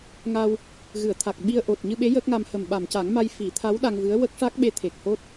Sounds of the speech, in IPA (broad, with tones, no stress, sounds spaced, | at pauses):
ŋ a˧ w | ɣ ɨ˨˩˨ ə̯ t̪ʰ a˨˩ k̚ ɓ i˧ ə̯ ʔ o˨˩ t̚ ɲ ɨ˧ ɓ e˧˥ j əː˦˥ k̚ ŋ a˧ m h ə˨˩ m ɓ a˨˩˨ m c a˨˩˦ ŋ m a˧ j f i˨˩˦ t̪ʰ a˧˥ w ɗ a˧ ŋ v ɨ˧˥ ə̯ w ə˦˥ k̚ ʂ a˦˥ k̚ ɓ e˧˥ t̪ʰ e˨˩ k̚ h o˦˥ t̚